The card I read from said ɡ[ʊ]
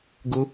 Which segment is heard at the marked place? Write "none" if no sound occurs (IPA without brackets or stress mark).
ʊ